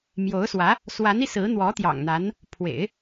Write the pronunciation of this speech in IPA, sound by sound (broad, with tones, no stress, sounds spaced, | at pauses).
m j o˧˥ ʊ̯ s w ä˧˥ | s w a˧˥ n i˧ s ɹ̩˧˥ n̪ w ɔ˧˥ t̪ j ɑ̰˨˩ ŋ n̪ a˧˥ n | pʰ w ḛ˨˩˦ ɪ̯